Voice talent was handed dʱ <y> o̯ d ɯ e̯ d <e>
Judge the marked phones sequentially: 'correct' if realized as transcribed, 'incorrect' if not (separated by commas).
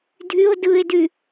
correct, incorrect